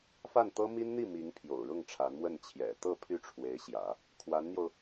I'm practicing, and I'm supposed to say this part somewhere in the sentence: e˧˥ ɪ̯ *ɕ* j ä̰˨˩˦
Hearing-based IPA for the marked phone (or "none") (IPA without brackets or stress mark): ɕ